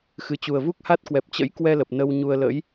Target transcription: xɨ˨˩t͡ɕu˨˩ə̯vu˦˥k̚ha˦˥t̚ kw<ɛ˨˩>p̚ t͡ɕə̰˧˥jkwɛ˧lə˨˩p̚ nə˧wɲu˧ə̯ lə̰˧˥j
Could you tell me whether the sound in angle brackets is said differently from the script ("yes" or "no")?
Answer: no